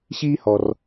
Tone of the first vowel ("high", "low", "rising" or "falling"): high